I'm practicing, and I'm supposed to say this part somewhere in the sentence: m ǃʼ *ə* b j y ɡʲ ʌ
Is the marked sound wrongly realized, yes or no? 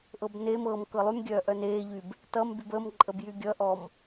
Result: no